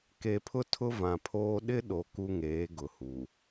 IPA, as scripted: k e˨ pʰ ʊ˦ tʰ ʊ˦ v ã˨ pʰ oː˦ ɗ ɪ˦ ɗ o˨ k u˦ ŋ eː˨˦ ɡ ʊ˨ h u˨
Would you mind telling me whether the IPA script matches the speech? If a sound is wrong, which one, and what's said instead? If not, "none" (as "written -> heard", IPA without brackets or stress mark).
none